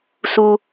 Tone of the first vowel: high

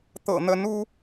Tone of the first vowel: low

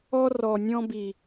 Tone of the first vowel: high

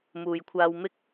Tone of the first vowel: low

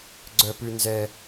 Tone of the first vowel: low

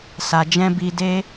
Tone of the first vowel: low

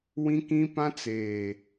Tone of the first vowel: high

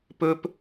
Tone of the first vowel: high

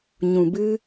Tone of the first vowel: low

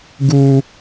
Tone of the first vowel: high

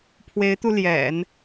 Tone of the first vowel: rising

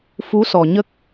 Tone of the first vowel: rising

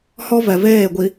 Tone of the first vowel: high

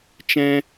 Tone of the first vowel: high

